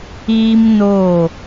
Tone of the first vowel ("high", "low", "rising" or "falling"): high